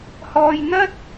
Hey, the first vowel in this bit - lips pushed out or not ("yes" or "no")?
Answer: yes